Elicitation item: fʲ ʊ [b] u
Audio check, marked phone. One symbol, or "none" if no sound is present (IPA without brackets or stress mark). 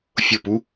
p